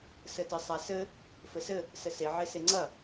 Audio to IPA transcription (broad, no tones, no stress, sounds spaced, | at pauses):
s ɘ t ɘ sˤ a s ɘ | f ɘ s ɘ | s ɘ s e ʕ e s e ŋ͡ǀ ɐ